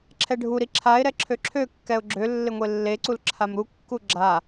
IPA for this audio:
ǁʰɛɖʱuɾi ǁʰaɪ̯ɾɛ ǁʰøǁʰøkːɛʊ̯ ɡ͡ǁø lːɪŋʷelːeǀul ǁʰamɾukːu ɡ͡ǁa

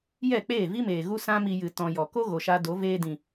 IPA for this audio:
jɛ˦˨k͡peː˦˨vi˦meː˨ ɣu˦sã˦mi˧jɨ˨ tɔ̃˨ jɔ˨ko˦ ɣo˨ʃa˧do˨˦ veː˧dĩ˨

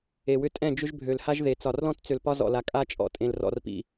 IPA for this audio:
e˨wʏ˦ tʼɛ̃˦˨ d͡ʒʏ˦ʒbʱø˨lha˦ʒ ðe˨ t͡sɒ˨rlɔ̃˦t t͡sø˨lpɒ˦zɔ̰˨la˨ kʼa˦t͡ʃʼɔ̰˨ tʼẽ˨lrɔ̰˨rpḭ˨

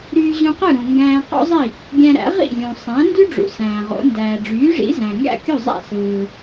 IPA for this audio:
ɾyː˧ʑũ˧qɯ˥˩ ɾũ˩ ŋɡæ̃ː˧qo̰˥zˤi˥˩ | ɡʲæ̃˧ɾæ̰˩˥ ʁḭ˥˩lʲũ˩ sˤæ̃˩˥ndy˥ɖ͡ʐṵ˩ sæ̃ː˩ʁo̰˩˥ ndæː˩ɖ͡ʐyː˩˥ʐḭ˩˥ zæ̃˩ŋɡæ̰˥˩kʲu˥˩zˤæ̰˥˩ sɯː˩

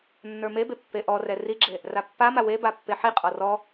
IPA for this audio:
nːə˞mebe pːeʔɔrɛ riɡ͡ǁe | rapːama we bapːeħiqʼɔ rɔ

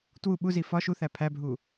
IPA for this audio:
twu ɓuzi fɒ ʃuθæ pʰæbʱu

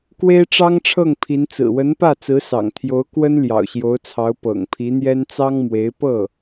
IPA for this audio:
kwe˥ɪ̯ʈ͡ʂɑ˥ŋ ʈ͡ʂʰɤ˥˩ŋpʰi˧˥n t͡sɹ̩˨˩wə˧˥npä˥˩ t͡sɹ̩˧˥sɑ̰˨˩ŋt̪ʰjo˧˥ʊ̯ kwə˥n ljɑ̰˨˩ʊ̯ɕjo˧˥ʊ̯t͡sʰɑ˧˥ʊ̯ pɤ̰˨˩ŋpʰi˧˥n̪jɛ˥n t͡sɑ˥ŋmwe˧˥ɪ̯ pɤ˥˩

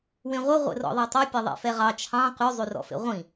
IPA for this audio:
wẽʁʷʌ ʁʷḛrɔ̰ðˤɛtˤʉ pʲʌðˤḛfɛʁɑ t͡ʃʰɑ̃ qy zˤyrɔ̰fḛʁʷĩ

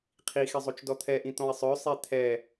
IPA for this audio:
qʰixe zˤot͡ʃdɔt̪ʰɛʔĩ t̪ɔ̃i̯sˤœsˤe t̪ʰɛ

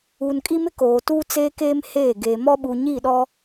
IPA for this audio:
uː˨nkʼi˦mɪ˦ koː˨tuː˦t͡seː˦keː˦m heː˦˨ ɡeː˨mɔ˦ ɓuː˨ɲiː˦˨ɗɔ˦

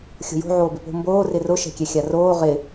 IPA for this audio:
xʲo̤jo̤ ʕoːbɪpo̤ mboː rɪrʊ ʃɛ̤kʲɛxʲaroː ʁɪ

